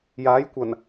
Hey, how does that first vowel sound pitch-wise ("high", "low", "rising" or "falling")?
rising